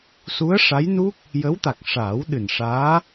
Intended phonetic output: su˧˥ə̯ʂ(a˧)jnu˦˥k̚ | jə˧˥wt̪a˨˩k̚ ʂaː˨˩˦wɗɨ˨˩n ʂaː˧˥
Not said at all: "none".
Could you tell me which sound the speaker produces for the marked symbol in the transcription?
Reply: a˧˥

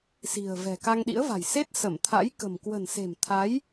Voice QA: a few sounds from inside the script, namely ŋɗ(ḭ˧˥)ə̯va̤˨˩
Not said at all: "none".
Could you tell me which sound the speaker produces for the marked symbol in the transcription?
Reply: ḭ˧˥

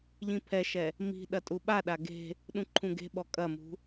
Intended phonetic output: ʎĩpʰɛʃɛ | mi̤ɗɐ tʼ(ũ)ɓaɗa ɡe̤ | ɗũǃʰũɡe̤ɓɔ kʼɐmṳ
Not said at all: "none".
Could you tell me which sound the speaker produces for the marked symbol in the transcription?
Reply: u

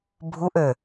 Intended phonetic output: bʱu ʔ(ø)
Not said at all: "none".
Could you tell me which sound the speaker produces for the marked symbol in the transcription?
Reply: ø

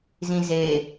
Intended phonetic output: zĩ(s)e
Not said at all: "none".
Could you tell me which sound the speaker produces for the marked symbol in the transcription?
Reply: z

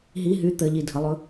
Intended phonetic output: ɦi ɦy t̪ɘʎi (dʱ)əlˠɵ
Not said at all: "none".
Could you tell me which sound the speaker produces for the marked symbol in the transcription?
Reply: dʱ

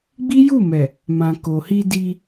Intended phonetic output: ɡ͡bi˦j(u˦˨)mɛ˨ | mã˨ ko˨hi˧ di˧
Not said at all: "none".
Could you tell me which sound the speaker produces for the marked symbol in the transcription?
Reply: u˦˨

